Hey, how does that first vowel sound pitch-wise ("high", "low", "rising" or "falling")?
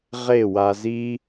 falling